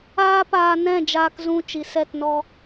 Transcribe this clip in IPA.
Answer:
aː˦paː˧nɛ̃˦˨ d͡ʒaː˧kzũ˧ t͡ʃi˨sɛ˦˨tnɔ˧

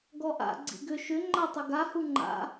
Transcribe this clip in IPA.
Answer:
ɡɔʔa̰ ɡ͡ǀḭɡʏ ʃʏ ŋ͡ǃatˤʏɡa huŋ͡ǃa̰

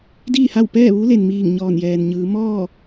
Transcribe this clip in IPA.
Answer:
diː˥˨ha˥˨w pɛː˥˨ ʋu˧˥le˩nmiː˧˩ŋ ɲɔː˧˩njɛː˩nɲɯː˩˧ mɔː˥˨

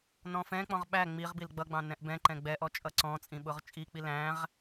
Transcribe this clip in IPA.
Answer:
nɔ̃fɛ̃k͡pɔ̃ʁ ɓæ ŋ͡miʁbil ɡ͡bʌɡ͡bɑ̃ nɛ̃ʔbɛ̃ǃɛ̃ ɡ͡bɛʔɔ t͡ʃʼʌǀɔ̃t͡sʼĩ ɓʊʁt͡ʃʼik͡pi læ̃ʁ

